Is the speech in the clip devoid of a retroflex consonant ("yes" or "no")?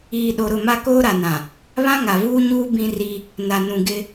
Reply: yes